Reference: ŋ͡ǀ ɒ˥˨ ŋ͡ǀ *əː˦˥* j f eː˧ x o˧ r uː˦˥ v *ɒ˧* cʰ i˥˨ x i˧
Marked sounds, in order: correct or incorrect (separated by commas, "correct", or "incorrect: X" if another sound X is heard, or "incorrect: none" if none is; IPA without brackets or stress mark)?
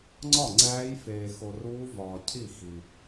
incorrect: æː˦˥, incorrect: ɒː˧